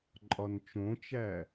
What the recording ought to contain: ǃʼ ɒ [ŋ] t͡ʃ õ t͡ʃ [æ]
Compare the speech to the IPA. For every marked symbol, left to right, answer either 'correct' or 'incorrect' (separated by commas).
incorrect, correct